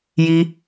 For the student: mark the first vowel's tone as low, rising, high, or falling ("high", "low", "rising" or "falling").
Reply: high